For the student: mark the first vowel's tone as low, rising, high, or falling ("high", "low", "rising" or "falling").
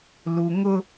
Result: low